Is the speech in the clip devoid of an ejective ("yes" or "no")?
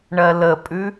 no